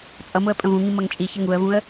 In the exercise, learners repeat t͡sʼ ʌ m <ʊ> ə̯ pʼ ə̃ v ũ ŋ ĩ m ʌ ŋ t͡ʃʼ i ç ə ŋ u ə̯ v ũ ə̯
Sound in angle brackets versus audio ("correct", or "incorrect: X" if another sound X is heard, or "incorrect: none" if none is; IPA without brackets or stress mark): correct